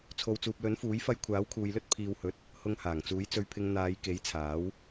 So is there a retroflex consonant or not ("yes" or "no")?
no